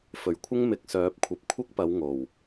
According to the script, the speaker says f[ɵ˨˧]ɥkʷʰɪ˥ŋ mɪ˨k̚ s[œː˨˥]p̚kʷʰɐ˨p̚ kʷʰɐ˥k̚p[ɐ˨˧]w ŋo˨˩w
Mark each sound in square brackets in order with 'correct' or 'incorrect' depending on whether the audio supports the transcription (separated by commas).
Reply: incorrect, correct, correct